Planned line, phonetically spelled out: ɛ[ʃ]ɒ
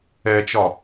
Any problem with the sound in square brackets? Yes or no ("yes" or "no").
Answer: yes